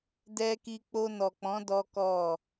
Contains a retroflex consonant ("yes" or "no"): no